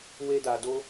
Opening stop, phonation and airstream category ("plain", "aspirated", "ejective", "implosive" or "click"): plain